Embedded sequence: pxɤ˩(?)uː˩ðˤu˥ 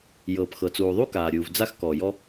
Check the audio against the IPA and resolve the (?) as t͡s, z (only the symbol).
t͡s